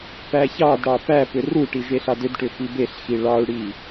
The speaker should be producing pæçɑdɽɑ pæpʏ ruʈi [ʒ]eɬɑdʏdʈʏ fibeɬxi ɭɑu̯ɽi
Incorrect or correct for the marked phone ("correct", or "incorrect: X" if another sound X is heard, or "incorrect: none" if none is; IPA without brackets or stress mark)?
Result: correct